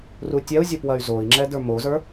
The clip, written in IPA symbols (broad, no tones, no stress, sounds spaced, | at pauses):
r u tʲ ɛ u̯ zʲ ə˞ p w ɐ y̯ z o i̯ ŋ͡ǁ ɛ d ə˞ m o z ə˞